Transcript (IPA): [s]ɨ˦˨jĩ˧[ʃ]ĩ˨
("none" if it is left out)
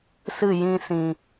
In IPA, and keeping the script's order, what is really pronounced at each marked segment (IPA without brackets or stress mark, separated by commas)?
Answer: s, s